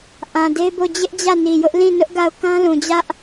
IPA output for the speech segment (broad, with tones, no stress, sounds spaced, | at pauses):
ʔ ã˨ d e˦ b o˦˨ d͡ʑ ɪ˦ ʔ d͡ʑ ä˦˨ n i˨ j ʊ˦ ʔ l ĩ˦˨ n ʊ˦ ʔ ɡ a˦˨ ʊ̯ k ã˦ l ũ˨ d͡ʑ ä˦ ʔ